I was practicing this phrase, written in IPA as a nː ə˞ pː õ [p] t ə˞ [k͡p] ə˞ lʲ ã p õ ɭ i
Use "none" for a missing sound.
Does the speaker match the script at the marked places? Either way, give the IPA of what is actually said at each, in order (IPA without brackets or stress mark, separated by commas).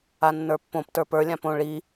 p, p